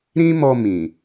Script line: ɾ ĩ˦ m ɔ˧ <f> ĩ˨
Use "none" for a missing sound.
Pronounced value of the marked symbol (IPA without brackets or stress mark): m